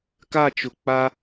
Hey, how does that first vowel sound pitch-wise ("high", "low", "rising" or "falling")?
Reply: falling